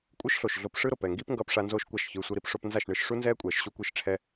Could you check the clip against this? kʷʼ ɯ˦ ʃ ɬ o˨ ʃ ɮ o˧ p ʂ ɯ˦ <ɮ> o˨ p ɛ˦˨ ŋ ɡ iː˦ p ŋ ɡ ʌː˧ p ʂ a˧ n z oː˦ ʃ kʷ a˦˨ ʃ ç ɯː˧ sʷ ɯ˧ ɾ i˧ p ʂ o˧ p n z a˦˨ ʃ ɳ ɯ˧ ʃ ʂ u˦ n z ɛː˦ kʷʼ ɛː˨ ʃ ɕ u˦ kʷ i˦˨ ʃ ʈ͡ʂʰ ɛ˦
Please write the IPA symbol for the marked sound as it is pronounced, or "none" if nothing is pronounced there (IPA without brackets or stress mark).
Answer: ɾ